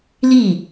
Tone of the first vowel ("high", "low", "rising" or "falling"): falling